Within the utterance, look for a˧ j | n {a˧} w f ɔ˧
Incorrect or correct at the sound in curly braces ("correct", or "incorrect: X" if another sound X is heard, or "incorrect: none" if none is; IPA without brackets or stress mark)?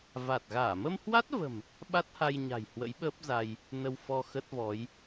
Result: incorrect: ə˧